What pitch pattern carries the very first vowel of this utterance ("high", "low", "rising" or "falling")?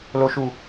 low